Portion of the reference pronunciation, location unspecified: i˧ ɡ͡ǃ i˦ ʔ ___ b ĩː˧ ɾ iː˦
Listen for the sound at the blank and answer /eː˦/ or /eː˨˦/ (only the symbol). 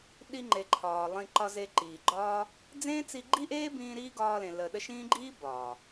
eː˦